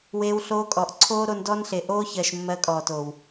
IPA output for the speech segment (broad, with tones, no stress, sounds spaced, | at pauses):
w eː˧ w ɬ oː˧ kʼ ɔ˨ ʔ ǀʰ oː˦ ɾ o˧ n d ɔ˦ n ɬ e˨ ʔ oː˦ ç ɜ˨ ʃ mː ɜ˧ kʼ ɔː˨ t oː˨ w